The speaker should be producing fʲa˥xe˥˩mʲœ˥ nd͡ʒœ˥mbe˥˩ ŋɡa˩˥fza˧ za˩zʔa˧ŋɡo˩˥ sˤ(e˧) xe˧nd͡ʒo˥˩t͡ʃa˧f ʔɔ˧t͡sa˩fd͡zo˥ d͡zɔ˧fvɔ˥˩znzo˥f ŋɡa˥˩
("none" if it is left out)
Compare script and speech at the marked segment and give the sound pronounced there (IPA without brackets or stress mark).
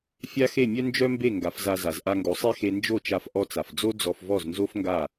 e˥